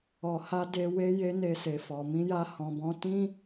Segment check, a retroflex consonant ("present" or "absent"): absent